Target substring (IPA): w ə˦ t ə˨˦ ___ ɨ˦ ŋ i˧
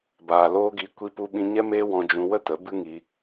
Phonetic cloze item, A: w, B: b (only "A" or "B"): B